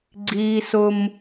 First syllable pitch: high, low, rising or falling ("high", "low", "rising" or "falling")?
high